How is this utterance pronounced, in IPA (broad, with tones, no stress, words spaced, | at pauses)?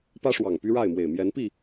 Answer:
pä˦ʂwɑ˨˩ŋ py˦ɻa˥˨ɪ̯mwe˨˩ɪ̯ mjɛ˨˦npi˥˨